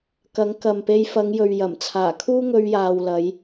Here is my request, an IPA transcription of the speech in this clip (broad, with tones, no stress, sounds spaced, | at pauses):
k ɐ˨˥ ŋ k ɐ˨ m p e˧ j f ɐ˨˧ ŋ j ɵ˨ ɥ j ɐ˨˩ m t͡sʰ aː˨˩ kʰ uː˥ ŋ ɵ˧ ɥ j aː˨ w l ɐ˨˧ j